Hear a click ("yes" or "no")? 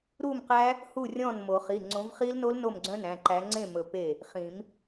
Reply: yes